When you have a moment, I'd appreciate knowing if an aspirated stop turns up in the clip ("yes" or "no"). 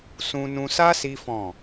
no